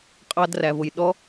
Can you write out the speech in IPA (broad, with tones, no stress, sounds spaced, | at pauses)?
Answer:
qʼ ɑ˧ d r æ˩ v ʊ˩ j ɗ ɔ˧˥